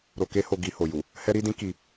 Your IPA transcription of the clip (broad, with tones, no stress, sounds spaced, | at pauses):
ɾ o˧ k e˦ h o˧ ɡ i˧ h o˨ j u˨ | h ɛ˦ ɾ i˦ d ĩ˦ k i˧